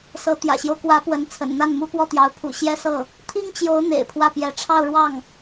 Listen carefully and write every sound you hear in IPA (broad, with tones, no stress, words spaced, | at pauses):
sɤ˧˥ t̪jä̰˨˩ɕjo˦ʊ̯kwä˧˥ pwə˧˥nt͡sʰə̰˨˩nn̪a˥˩nmu˥ pwɔ˥˩t̪jɑ˧˥ʊ̯ pʰṵ˨˩ ɕjɛ˥sɤ˥˩ | t̪ʰi˥ŋt͡ɕjo˧˥ʊ̯ n̪ḛ˨˩ɪ̯pʰwä˥˩pjɛ˧˥ ʈ͡ʂʰɑ˥˧ʊ̯ɻwɑ˥˩ŋ